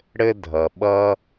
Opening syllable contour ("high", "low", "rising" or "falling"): high